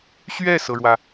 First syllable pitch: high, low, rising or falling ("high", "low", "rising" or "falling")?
falling